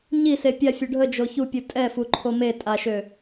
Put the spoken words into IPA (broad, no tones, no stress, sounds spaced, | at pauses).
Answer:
ɲ i s e pʲ a fʲ u ɖʱ ə d͡ʒ o ç u pʲ u tʼ ɛ f u ǃʰ o m e tʼ a ʃ ø